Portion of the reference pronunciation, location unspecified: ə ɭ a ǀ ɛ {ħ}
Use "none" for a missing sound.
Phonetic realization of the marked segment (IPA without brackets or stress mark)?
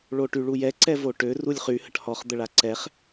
χ